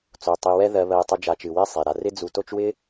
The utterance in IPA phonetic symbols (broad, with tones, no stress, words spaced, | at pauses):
t͡so˩ tˤi˨wɛ˦ ðɜ˨βɜ˨i̯tˤɨ˨ d͡ʒa˨t͡ʃɨ˩we˦ sˤe˩ɾa˨ rɪ˦d͡zu˨ to˦t͡ʃwɪ˥